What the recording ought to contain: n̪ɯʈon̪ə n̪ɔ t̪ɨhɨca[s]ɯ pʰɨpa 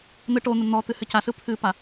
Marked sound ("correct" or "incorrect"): correct